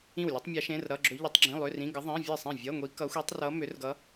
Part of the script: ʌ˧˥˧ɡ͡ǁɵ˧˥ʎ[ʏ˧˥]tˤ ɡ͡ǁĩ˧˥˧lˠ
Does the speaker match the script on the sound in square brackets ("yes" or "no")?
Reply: yes